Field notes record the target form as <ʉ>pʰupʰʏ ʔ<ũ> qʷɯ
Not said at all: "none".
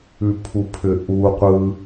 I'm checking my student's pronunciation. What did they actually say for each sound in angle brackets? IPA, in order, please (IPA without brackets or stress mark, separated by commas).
ʉ, u